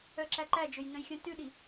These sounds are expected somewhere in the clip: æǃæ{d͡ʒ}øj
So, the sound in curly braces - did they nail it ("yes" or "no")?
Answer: yes